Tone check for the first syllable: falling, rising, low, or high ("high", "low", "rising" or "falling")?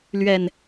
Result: low